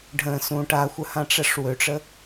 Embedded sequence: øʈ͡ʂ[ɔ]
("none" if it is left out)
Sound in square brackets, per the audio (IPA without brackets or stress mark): ə